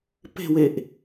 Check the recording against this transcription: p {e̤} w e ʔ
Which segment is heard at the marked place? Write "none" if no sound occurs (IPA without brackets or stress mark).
e̤